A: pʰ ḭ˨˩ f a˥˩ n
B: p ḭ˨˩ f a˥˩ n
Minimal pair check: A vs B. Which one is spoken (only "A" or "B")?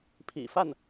A